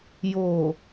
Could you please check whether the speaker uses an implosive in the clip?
no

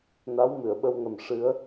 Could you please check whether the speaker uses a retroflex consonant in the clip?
yes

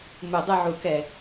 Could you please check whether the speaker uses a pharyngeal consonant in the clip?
yes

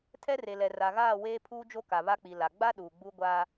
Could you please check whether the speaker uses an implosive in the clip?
yes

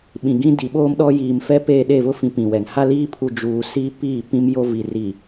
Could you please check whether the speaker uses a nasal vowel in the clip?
yes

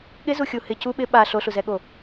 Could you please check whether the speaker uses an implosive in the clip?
yes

